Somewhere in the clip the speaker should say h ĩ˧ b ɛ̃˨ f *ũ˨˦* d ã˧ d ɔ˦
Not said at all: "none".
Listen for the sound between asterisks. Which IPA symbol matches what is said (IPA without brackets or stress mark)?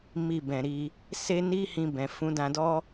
ũ˨˦